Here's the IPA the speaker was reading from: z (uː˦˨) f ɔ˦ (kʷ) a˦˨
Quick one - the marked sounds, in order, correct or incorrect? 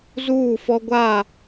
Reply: correct, incorrect: ɡʷ

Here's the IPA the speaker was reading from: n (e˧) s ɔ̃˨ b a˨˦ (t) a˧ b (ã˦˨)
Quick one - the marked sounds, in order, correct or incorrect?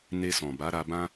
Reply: correct, incorrect: ɾ, incorrect: ã˦

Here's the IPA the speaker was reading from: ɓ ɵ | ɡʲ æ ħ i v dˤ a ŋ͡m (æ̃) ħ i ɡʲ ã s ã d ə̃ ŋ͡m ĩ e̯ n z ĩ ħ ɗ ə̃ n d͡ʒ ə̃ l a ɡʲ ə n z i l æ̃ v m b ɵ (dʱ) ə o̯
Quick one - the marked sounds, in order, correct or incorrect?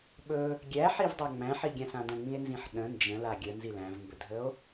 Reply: correct, correct

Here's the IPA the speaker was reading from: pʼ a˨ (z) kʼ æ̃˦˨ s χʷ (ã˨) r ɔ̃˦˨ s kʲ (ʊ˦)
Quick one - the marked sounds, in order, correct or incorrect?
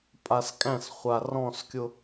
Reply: incorrect: s, incorrect: a˨, correct

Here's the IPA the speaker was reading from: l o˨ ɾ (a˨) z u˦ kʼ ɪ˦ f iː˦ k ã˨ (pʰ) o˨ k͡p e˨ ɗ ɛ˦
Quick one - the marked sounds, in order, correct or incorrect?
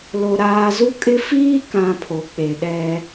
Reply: incorrect: aː˨, correct

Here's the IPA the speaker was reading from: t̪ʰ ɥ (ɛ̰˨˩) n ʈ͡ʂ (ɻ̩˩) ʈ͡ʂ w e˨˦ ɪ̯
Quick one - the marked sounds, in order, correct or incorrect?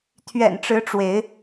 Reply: correct, incorrect: ɻ̩˨˦

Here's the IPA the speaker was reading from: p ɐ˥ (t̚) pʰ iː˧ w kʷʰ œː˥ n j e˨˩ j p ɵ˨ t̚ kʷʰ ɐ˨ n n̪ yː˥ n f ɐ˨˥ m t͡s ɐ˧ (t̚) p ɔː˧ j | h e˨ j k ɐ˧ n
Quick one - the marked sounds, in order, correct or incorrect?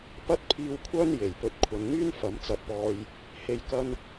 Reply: correct, correct

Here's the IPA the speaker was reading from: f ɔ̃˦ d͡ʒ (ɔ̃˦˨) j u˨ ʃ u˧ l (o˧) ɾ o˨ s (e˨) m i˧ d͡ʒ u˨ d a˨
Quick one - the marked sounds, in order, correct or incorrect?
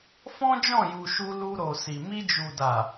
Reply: correct, incorrect: u˧, incorrect: i˨

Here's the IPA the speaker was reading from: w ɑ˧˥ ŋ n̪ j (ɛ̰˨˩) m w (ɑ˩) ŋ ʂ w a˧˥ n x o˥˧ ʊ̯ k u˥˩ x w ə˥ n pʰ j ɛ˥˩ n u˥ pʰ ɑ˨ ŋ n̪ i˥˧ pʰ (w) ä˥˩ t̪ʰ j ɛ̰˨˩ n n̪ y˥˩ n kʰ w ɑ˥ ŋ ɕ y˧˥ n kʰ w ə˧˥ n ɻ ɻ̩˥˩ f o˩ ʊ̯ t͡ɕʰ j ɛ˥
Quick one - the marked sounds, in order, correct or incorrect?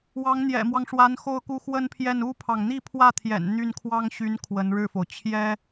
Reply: correct, incorrect: ɑ˦, correct

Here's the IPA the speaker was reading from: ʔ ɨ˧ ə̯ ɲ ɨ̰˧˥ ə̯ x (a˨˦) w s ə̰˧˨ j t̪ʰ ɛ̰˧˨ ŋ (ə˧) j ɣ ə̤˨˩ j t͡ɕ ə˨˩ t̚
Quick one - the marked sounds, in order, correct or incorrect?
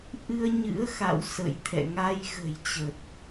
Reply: incorrect: a̰˧˨, incorrect: a˧

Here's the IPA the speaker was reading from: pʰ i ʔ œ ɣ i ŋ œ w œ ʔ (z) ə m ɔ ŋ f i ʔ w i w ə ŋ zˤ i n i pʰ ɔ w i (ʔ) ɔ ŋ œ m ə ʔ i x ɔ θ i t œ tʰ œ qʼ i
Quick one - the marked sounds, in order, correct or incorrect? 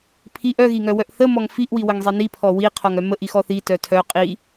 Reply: incorrect: θ, incorrect: qʰ

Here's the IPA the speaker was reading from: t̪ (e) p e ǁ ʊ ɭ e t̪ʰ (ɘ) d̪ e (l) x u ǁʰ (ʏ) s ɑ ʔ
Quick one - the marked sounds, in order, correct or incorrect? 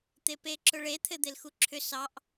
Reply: correct, correct, correct, correct

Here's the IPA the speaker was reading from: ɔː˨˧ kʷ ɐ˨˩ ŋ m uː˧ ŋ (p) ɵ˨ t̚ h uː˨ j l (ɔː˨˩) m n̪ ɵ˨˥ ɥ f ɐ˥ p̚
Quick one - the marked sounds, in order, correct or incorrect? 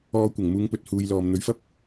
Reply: correct, incorrect: ɔː˨

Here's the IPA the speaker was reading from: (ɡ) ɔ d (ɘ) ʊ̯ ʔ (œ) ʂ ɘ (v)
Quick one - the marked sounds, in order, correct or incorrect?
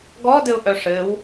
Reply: correct, correct, correct, incorrect: w

